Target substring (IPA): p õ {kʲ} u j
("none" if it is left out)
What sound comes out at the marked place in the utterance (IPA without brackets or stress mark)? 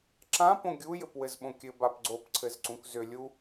ɡʲ